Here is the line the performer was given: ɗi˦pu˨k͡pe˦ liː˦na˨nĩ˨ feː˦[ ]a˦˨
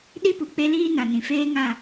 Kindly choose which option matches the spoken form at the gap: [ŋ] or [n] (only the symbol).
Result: ŋ